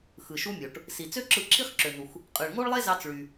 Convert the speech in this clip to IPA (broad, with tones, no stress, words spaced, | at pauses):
xɯ˩ʃu˧mʲo˩ʈ | si˩t͡sø˥ǁɯ˧ ǁʰi˥χǁø˩nu˩x | qʼɯ˩ɭŋo˥ɭlˠe˥zɑ˧t͡s ɭy˩